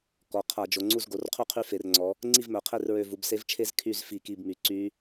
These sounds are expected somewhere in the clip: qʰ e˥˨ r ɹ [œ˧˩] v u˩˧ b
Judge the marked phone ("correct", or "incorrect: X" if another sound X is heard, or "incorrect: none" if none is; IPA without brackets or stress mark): incorrect: ø˧˩